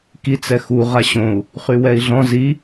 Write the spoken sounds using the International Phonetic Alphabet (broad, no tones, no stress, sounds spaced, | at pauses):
k i t͡s ɛ x u ʁ a ɕ õ u̯ | χ y w ɛ i̯ ɮ ɔ̃ z i